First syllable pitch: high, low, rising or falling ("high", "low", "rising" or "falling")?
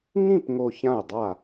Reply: falling